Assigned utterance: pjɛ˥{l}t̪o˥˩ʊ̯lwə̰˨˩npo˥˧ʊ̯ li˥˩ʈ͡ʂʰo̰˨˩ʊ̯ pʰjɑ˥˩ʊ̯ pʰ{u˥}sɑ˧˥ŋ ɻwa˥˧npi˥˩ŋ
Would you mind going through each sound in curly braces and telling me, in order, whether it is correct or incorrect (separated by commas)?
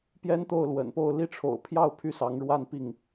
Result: incorrect, incorrect